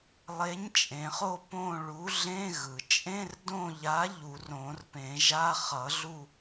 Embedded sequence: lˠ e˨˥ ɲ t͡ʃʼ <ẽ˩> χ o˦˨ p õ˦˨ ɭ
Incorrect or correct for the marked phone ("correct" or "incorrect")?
correct